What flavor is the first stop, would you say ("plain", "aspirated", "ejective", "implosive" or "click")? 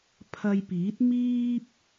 aspirated